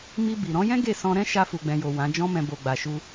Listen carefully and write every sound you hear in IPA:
m i˧ b i˨ ɾ ɔ̃˨˦ j ɛ̃˦ ɡ e˦˨ s ɔ̃˧ ɾ ɛ̃˦ ʃ a˧ f u˨ ɡ͡b ɛ̃˨ j o˨ w ã˨˦ d͡ʒ ɔ̃˦ m ɛ̃˧ b o˧ ɡ͡b a˧ ʃ u˦

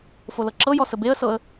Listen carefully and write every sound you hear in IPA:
f o l ɤ ǁ ɤ j ɔ s ə b e ə̯ s ɤ ə̯

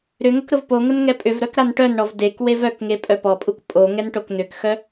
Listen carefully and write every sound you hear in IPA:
ɾ ʏ ŋ ə k ɾ ʊ v p o ŋ ə n ŋ ɛ pʼ ʏ v ɾ œ k ɾ a n ʈ œ n ɳ ɔ v d e k w e v œ k ŋ e pʼ œ p ɔ pʼ u k pʼ o ŋ ɛ n ʈ o k n̪ ʏ k x œ

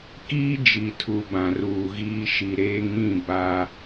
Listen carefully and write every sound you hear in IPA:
k iː˦ d͡ʒ i˨ tʰ u˨ b ã˨ r uː˨ ɣ iː˦ ʃ i˨ ɾ eː˦ ŋ ĩ˦˨ b a˨

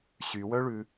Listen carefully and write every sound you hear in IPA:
ɕ y w œ ɭ ʉ

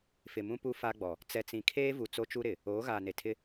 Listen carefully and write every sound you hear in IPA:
f ɪ˨ m ũ˦ p u˦ f a˦ ɡ͡b ɔ˨ | t͡s ɛ˨ t͡s ĩ˨ kʰ eː˦ v u˨ t͡s o˦ t͡ʃ u˦ ɾ ɪ˨ | oː˨˦ ɣ aː˨ n e˨ tʰ ɪ˦

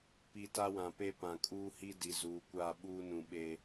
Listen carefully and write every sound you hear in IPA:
p i˨ t a˦ w ã˨ p e˦ p ã˨ kʼ uː˦ h i˦ d i˨ z uː˨ kʷ a˦˨ ɓ uː˦ n ũ˨ ɓ e˨

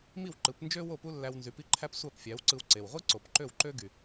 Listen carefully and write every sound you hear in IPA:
m i˥˩ w ǃ ɯ˩˥ p n d͡ʒ ø˥ w o˥˩ p u˥ lː æ˧ w n z y˩˥ p i˥ ǃʰ æ˥ p sʷ ɑ˥˩ p fʲ æ˩˥ w ǀ ɯ˧ w ǀ e˩ w ʁʷ i˥ ǀ o˩ p ǃ ø˥˩ w ǃ ø˥ ɡ y˩

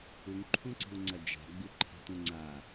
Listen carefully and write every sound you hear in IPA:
u ŋ ǃʰ ũ ǀ i̤ w ŋ͡ǀ ɐ d͡ʒ a̤ ɡ͡b i ǃʰ ɛ̤ t ũ ŋ͡ǀ a

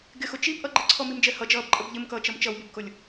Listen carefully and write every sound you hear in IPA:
ɡ ɪ x ʊ t͡ʃ i b ʔ ʌ ɡ͡ǃ ɪ ǀʰ ɔ m i m d͡ʒ ɛ h ʌ d͡ʒ ʌː b ǃʼ ə b ʎ ɪ m k ʌː t͡ʃ ʌ m t͡ʃ ʌ w b ʊ b k ʊ lʲ

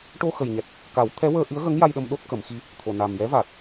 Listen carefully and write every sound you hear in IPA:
ʈ o˧ x ə˨˩ j ɲ ɛ˨˩ t̚ | k a˨˩˦ w t̪ʰ ɛ˧˥ w əː˧ ʔ ɨ˧˥ ə̯ ɣ ə˧˥ ŋ j a˧ j ɗ ə˧ m ɗ o˦˥ t̚ k ə˨˩˦ m x i˧˥ | t̪ʰ o˨˩˨ n a˨˩ m j ɛ˧˥ v aː˨˩ t̚

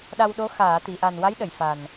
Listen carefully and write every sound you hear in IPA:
ɗ a˧ w ɗ o˧˥ x aː˨˩˨ t̪ i˨˩˨ ʔ a˨˩ n w a˧˥ j ɗ ə˨˩˨ j f a˨˩ n

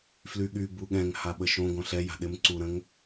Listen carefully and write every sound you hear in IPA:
f l y ɠ y b u ɠ ɛ̃ ŋ h a ɓ ə ʃ õ ɡ õ ɬ ɛ j a̤ ɗ ɪ m ǀ u ɾ ə̃ ŋ

